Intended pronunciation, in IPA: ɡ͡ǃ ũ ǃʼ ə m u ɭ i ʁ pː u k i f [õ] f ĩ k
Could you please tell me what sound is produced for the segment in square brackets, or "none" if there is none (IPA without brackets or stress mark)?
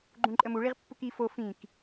o